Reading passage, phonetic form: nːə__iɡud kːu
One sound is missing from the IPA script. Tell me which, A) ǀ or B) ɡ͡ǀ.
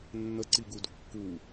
A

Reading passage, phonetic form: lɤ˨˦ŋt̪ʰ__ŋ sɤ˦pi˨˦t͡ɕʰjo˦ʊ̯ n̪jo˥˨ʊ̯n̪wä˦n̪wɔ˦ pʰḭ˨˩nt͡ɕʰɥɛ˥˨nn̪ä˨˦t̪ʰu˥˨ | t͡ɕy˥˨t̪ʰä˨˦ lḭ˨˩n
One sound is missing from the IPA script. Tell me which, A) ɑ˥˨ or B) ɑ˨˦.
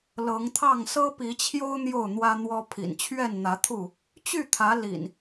A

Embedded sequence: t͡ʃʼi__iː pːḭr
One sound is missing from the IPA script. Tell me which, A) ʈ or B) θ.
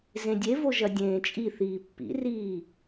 B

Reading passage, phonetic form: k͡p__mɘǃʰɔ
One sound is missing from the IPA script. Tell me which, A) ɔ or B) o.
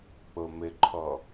B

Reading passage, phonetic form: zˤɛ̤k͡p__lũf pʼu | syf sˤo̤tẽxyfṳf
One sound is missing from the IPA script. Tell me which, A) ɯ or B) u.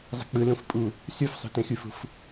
A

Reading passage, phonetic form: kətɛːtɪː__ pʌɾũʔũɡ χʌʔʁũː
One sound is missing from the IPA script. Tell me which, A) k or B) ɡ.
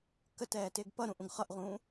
B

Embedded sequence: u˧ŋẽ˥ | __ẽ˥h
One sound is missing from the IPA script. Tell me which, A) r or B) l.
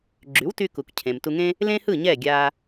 B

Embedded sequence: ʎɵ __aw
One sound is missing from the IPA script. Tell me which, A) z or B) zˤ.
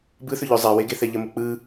B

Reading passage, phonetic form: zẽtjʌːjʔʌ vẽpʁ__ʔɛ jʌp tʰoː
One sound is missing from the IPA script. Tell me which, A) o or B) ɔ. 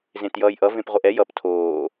A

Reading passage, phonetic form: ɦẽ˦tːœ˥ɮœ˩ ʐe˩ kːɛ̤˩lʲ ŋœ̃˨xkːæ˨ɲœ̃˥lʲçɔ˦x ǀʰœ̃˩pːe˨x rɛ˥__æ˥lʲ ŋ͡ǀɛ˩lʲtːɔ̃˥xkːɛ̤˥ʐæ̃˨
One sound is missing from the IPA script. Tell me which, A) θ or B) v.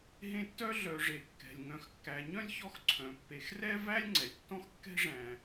B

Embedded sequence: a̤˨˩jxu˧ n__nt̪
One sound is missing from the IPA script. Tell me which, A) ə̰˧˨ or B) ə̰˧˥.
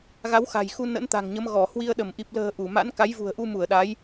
B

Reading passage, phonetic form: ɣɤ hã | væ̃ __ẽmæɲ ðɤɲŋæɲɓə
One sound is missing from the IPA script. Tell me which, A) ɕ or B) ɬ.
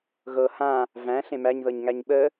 B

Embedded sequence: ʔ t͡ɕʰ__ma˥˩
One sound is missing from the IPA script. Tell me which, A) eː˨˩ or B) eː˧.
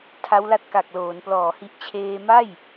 B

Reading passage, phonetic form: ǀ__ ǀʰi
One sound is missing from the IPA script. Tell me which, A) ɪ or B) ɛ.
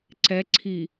B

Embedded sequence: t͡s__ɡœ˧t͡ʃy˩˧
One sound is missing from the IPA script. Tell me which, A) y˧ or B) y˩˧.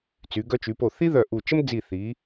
B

